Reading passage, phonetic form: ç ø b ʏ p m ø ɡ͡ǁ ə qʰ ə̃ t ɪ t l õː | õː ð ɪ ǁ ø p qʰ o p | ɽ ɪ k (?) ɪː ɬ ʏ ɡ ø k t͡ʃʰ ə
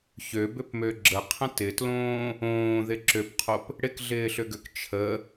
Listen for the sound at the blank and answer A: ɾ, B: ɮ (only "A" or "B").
B